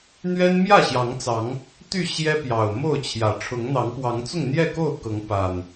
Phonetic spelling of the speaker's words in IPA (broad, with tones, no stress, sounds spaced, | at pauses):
n̪ ɥ ɛ˦ n m j ä˥˨ ɕ j ɑ˨˦ ŋ t͡s ɑ˨˦ ŋ | t̪ y˥˨ ɕ j ɛ˦ p j ɑ˨˩ ʊ̯ m o˥˨ ʊ̯ t͡ɕʰ j ä˨˩ ʈ͡ʂʰ ʊ˨˦ ŋ n̪ ɑ˨˦ ŋ p w ɑ˨˦ ŋ t͡s ʊ˥˨ ŋ n̪ j ɛ˥˨ k o˥˨ ʊ̯ k ɤ˨˦ ŋ p a˨˩ n